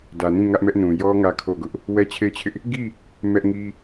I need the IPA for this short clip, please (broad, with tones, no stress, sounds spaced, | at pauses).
d ä˨ n ĩ˦˨ ŋ ä˦ ʔ m ɛ˦ ʔ n ũ˨ j ɔ˦ ŋ ä˦ kʰ o˦˨ ɡ ʊ˦ ʔ | w ɛ˦ t͡ɕʰ e˦˨ ɪ̯ t͡ɕʰ ɪ˦ ʔ | ɡ i˦˨ | m ɛ˦ ʔ ŋ i˦